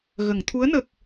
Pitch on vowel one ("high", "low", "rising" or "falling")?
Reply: low